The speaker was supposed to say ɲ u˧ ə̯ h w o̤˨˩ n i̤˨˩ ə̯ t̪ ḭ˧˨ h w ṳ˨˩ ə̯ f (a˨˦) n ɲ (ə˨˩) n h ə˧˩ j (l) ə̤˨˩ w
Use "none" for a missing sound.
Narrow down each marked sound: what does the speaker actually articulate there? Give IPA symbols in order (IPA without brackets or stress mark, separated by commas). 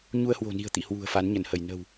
a˨˦, ə˧˩, n